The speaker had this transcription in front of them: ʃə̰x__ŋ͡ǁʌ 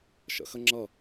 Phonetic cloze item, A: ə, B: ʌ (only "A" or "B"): A